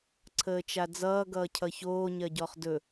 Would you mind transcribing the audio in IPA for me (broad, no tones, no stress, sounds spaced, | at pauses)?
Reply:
ǀʰ əː t͡ʃ a d͡z ʌː ɡ ʌː cʰ ʌ ç oː ɲ ɜ ɟ ɔ χ d ɵ